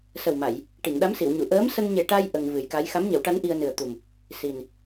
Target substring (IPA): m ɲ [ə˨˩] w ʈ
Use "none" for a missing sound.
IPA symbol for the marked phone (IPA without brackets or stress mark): ə˨˩˦